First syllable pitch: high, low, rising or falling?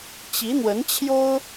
rising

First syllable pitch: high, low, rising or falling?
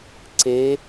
rising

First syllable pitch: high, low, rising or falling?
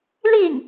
falling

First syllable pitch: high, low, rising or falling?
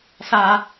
high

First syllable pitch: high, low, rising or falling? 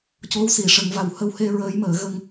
rising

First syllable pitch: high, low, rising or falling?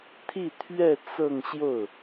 falling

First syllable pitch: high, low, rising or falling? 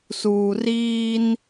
low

